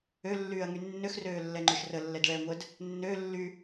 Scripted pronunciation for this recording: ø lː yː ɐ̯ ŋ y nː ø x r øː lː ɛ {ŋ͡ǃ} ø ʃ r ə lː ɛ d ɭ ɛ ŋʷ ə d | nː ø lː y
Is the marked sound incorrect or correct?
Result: correct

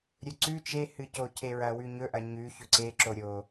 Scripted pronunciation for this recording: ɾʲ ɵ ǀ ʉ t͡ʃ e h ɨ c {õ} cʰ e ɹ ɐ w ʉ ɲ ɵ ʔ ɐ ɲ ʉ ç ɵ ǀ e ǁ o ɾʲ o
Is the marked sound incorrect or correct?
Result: incorrect: o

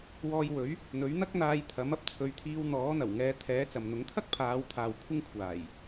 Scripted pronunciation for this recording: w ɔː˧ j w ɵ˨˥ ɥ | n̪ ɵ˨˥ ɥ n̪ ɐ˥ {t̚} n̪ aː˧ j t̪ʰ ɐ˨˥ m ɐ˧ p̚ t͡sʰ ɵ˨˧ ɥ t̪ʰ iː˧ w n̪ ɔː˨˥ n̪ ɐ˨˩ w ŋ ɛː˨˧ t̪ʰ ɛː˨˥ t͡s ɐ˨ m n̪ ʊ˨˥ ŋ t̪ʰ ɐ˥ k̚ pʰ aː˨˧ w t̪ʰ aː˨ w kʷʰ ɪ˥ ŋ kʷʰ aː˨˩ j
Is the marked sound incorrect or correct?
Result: incorrect: k̚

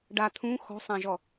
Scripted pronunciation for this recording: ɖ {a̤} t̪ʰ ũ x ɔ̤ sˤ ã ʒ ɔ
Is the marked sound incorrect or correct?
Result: incorrect: a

